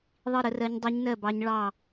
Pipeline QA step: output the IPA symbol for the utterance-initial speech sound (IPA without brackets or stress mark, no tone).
ðˤ